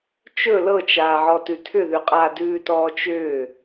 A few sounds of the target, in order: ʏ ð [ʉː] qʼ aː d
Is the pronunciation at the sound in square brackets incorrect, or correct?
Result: incorrect